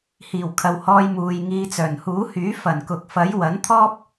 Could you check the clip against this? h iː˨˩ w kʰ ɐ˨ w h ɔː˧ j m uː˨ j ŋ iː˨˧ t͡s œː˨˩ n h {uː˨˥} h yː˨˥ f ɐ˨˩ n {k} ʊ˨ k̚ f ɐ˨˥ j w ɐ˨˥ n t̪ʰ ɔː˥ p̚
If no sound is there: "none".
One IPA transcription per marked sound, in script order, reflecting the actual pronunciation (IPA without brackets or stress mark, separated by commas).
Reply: uː˨˥, k